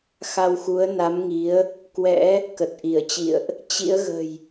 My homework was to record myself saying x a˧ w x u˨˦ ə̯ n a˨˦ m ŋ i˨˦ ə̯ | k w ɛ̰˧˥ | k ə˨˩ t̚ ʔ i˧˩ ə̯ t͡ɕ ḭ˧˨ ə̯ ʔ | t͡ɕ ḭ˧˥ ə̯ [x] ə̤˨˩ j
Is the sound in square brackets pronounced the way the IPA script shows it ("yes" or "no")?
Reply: no